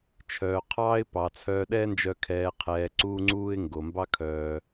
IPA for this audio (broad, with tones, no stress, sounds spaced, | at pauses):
t͡ʃʰ œː˨ qʰ ɑː˦ ɪ̯ p ɑ˨ t͡sʰ œː˧ ɗ ɛː˦ n d͡ʒ œ˧ kʰ ɛː˨ qʰ ɛː˨ ǀ uː˧ ŋ͡ǀ uː˧ ɪ̯ ŋ ɡ o˨ m b ɑ˦ kʰ œː˧